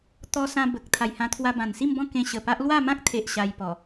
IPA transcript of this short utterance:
t̪ ɔ˧ s ã˧ b ə˨ k̚ t̪ʰ a˨˩ j h ã˧ t̪ʰ w a˧ b ã˨˩ n s i˥˧ m b ɔ̃˥˧ k ẽ˧ ɕ ə˨˩ p a˦ ʔ l w a˥˧ m ã˦ k̚ t̪ʰ e˨ ʔ ɕ a˧ j p ɔ˨˩

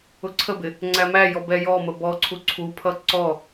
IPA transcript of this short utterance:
ʊ ǀʰ ə b ɪ | ŋ͡ǀ æ m æ j ɔ b ɛ j ɔ m ə b ɔ ǀʰ u ǀʰ u pʰ ʌ ǀ ɔ

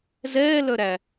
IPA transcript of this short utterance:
z ɛː l œ ɾ æ

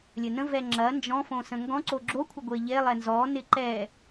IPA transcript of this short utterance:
lʲ ə n ə̃ v ɛ ŋ͡ǁ ɐ n d͡ʒ ɔ̃ f õ s ə̃ ŋ ɡ ɔ̃ ǀ o ɡ͡ǁ o kʷʰ ɪ ɡʷ e ʎ e lˠ ɛ n z ɔ n ɪ ǃ ɛ

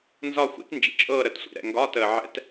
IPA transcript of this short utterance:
n z ɒ˥˧ xʷ ḭ˦˥ t n d͡ʒ ḭ˨ t͡ʃʼ ɤː˥˧ ɾ ə˨ t sʷ ḭ˨ ɾ ɛ̰˨ ŋ ɡ ɒː˧˥˧ t əː˨ ʕ ɛ̰˦˥ t

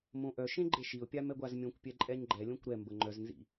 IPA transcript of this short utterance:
m õ ʔ œ ʃ ẽ ɡ͡ǃ e ʃ i ʊ̯ pʲ a m ɛ ɡʷ a z mʲ õ kʷ pʲ ɛ ǃʼ ɛ ɲ ɡ͡ǃ ɛ lʲ õ kʷ ɾ ɛ m b ə ŋ͡ǃ œ z n z ḭ

